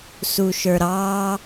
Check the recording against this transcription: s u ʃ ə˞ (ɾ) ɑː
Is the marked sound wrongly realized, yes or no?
no